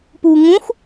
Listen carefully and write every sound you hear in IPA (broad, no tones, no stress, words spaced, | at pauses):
puːŋũx